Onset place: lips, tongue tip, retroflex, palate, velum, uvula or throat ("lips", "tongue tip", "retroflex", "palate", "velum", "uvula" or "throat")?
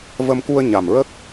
lips